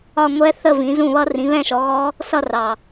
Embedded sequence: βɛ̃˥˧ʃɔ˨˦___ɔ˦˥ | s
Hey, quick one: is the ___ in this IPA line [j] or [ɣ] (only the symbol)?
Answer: ɣ